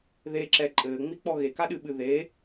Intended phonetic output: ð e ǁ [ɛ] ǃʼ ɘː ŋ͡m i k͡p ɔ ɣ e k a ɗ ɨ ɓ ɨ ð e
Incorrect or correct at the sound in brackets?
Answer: correct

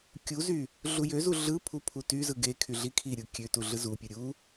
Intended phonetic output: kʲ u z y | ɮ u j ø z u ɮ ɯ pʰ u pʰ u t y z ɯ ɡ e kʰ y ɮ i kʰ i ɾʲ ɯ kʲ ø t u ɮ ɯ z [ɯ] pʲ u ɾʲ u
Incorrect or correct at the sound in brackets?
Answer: incorrect: u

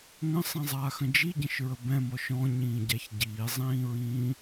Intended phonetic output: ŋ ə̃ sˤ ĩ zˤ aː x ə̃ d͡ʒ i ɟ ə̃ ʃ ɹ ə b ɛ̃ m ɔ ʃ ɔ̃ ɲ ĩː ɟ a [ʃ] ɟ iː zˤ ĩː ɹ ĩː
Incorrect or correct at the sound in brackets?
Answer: incorrect: ç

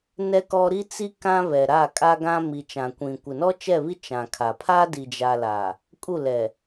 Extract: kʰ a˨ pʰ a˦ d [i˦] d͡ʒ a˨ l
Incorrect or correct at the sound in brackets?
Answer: incorrect: i˨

